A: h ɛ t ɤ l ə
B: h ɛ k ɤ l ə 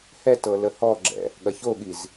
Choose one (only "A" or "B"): A